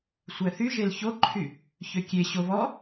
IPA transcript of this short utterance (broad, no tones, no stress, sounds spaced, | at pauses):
sʷ æ θ y ʒ e l ç o ǃʰ y | ç ø kʲ e ɕ o β ɔ